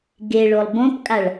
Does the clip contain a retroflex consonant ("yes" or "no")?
yes